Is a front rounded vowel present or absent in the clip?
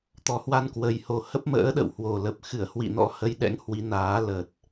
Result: absent